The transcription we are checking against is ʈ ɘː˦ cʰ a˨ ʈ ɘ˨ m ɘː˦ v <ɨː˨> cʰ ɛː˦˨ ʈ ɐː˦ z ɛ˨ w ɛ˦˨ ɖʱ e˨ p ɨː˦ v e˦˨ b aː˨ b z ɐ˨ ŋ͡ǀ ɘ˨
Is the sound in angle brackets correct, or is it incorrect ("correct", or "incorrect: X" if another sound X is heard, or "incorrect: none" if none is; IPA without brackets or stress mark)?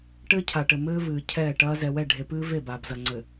correct